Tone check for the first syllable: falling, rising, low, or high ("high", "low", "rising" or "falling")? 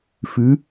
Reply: rising